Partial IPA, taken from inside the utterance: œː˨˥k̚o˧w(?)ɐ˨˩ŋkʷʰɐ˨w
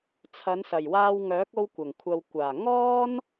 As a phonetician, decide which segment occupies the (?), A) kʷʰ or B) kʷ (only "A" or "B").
B